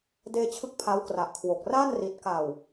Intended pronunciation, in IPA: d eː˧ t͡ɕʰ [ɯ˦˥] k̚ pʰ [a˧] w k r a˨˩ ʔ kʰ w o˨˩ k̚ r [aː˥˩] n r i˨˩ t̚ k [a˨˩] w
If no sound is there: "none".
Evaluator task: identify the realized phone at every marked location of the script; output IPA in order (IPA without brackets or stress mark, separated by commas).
ɯ˦˥, a˦˥, aː˥˩, a˨˩